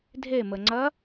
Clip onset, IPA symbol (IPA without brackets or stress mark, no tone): dʱ